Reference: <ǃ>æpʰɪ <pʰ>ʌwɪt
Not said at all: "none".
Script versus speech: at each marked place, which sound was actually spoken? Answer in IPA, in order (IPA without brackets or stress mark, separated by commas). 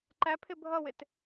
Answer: ǃ, bʱ